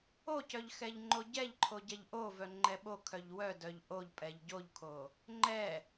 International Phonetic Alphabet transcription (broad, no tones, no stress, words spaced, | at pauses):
ocœʎ xɛʎŋ͡ǃoɟɛʎǃʰo ɟɛʎʔovœ ŋ͡ǃɛɓokʰœʎ wœ dœʎʔoʎpʼɛʎ ɟoʎkʰo | ŋ͡ǃɛ